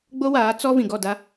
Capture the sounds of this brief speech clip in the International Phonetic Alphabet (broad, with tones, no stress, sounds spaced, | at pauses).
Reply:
ɡ͡b o˦ w aː˨˦ t͡s ɔ˦ v ĩ˨ ɡ ɔ˦˨ d a˦